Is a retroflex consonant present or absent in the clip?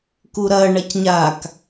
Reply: present